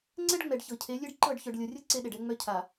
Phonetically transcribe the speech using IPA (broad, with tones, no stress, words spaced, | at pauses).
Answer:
ŋ͡ǀɛ˦ɖŋ͡mɛ˨ɖ çɤ˨cʰe˨˦ lʲe˦ɖǃɤ˦˨ɖçœ˨ɖ lʲɤ˨rʲɤ˦ ǀe˦ɗe˨ɖɛ˦ŋ͡mœ˦ cʰa˨